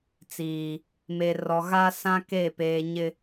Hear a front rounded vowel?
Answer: no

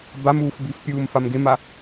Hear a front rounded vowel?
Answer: no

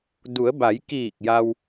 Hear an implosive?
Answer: no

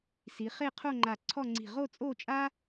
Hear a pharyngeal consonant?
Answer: no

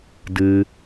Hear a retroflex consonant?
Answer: no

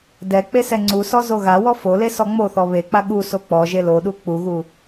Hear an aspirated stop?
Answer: no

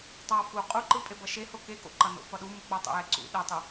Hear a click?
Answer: yes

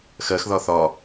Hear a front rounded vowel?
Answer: no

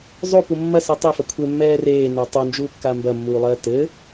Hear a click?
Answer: no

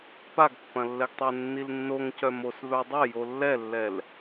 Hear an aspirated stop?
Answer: no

